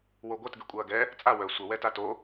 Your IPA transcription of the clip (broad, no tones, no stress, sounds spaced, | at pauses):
w o ɡʷ ɐ t ɡ y kʷʼ ɐː ɡ ɛ | t͡sʼ a w œ sʷ ə w ɛ t a t o